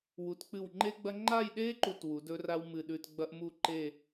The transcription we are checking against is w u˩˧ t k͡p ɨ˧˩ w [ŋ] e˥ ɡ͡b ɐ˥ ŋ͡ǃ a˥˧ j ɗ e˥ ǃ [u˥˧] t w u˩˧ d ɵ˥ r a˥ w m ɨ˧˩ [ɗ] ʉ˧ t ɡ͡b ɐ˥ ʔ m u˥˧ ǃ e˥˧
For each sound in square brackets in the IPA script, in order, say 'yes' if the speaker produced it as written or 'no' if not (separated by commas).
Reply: no, yes, yes